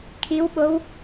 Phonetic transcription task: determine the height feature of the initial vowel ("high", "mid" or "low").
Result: high